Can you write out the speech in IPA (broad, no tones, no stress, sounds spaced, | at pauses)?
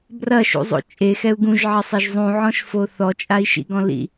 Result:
b r ɐ ʃ ṵ zˤ o̰ t͡ʃʼ e x ɛ u̯ ɡ ũ ʒ ʕ ɐ sˤ e ʒ zˤ ũ ʕ ɔ̃ ʃ f o θ ɔ t͡ʃʼ a i̯ ʃ ḭ ɡ ɔ̃ l ḭ